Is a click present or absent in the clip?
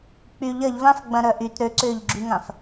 present